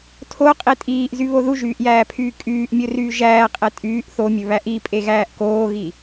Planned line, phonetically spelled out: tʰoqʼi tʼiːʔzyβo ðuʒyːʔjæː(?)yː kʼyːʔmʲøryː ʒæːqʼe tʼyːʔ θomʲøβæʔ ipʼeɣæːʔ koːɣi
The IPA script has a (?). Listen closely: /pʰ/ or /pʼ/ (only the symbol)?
pʰ